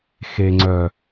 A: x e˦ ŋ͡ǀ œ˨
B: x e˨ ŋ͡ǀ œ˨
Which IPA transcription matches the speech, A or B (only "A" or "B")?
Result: B